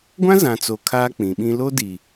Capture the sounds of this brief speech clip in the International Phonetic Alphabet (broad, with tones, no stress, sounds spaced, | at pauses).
ɡʷ ã˦ z ã˨ t͡s o˨ kʰ aː˦ k͡p ĩ˨ ɓ ĩ˦ l o˦ d i˨